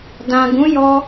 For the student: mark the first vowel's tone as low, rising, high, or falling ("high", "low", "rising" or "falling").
low